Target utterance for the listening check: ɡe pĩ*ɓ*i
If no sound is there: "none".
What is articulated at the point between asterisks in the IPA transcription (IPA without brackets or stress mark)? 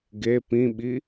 ɓ